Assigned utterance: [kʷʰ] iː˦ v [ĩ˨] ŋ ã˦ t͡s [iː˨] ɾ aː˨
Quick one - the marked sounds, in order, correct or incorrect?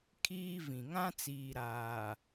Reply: incorrect: kʰ, correct, correct

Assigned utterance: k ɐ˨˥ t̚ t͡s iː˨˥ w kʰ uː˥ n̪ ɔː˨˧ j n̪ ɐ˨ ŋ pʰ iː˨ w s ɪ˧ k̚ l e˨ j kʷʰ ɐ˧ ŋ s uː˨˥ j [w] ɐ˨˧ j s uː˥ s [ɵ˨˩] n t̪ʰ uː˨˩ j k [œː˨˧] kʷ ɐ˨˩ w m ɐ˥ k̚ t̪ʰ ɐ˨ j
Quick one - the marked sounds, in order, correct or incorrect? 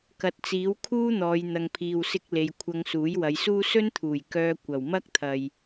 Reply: correct, incorrect: ɵ˥, incorrect: œː˧

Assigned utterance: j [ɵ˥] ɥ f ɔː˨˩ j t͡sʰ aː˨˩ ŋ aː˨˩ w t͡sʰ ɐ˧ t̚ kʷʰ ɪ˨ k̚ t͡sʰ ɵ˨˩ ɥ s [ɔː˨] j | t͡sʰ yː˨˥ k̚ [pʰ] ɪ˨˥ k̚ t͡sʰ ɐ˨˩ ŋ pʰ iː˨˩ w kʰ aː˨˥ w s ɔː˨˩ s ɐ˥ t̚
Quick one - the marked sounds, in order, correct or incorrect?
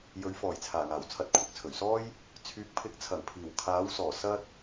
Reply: incorrect: ɵ˨˥, incorrect: ɔː˥, correct

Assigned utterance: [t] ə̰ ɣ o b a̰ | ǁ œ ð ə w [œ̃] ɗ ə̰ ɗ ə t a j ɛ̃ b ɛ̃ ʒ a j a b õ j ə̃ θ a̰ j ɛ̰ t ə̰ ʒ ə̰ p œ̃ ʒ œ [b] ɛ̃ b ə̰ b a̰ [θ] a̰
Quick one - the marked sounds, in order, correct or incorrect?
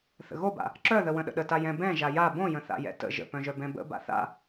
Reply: incorrect: θ, incorrect: ə̃, correct, correct

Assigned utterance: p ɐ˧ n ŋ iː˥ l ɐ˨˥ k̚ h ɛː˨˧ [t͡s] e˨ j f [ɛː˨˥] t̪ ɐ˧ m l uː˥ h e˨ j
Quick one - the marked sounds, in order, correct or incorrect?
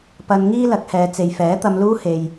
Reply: correct, correct

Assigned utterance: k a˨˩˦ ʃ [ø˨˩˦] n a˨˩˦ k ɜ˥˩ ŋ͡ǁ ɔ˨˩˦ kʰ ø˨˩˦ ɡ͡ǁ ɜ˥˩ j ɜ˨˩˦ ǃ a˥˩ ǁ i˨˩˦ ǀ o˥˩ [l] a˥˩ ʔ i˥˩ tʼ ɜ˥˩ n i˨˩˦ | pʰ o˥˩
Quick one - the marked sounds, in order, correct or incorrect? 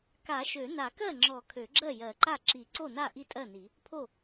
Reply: correct, incorrect: n

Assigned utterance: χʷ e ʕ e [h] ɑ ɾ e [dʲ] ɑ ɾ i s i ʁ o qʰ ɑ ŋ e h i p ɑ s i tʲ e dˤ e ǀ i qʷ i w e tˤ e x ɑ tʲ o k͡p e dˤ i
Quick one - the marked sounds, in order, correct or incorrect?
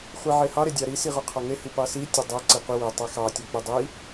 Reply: correct, correct

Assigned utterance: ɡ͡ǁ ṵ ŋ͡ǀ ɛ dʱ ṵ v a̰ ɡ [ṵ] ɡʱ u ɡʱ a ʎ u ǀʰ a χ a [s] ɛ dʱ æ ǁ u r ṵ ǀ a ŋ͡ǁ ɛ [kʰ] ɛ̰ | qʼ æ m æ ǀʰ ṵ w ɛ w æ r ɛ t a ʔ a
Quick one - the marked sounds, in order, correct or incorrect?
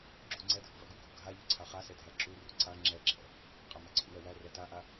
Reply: incorrect: u, correct, incorrect: ǁʰ

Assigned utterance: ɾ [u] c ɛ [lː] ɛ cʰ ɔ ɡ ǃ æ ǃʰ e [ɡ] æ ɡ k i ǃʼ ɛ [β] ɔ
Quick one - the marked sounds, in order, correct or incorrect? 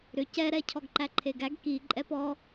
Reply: incorrect: ʏ, incorrect: ɾ, correct, incorrect: p

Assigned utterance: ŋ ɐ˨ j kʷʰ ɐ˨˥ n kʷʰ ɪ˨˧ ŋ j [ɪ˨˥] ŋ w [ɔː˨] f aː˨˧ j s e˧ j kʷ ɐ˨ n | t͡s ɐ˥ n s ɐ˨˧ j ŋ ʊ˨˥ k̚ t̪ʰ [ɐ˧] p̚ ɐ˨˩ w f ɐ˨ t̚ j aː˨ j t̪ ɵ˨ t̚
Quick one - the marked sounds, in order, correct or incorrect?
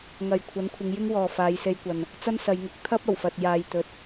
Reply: incorrect: ɪ˥, correct, incorrect: ɐ˥

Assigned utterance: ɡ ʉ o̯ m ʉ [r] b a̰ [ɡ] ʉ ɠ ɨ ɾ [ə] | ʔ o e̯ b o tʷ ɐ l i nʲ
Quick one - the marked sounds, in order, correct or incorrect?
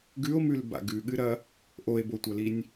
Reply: incorrect: l, correct, incorrect: ɐ

